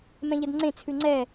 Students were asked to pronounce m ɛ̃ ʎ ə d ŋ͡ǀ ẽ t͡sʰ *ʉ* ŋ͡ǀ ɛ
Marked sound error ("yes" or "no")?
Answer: no